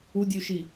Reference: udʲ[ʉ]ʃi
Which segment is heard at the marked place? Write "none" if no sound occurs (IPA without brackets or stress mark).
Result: ʉ